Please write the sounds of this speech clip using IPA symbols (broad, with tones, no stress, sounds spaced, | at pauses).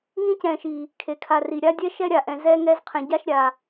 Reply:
ŋ ĩ˥ c ɛ̃˨ ʃ i˩ | kʰ e˩ kʰ a˨ r i˩ ɾʲ a˦ dʲ ɛ˦ ʃ ɛ˥ ɾʲ a˩ ʔ ɛ̃˨ z ɛ˦ ŋ ɛ˦ z qʰ ɛ̃˨ ɟ a˥ ʃ ɾʲ a˨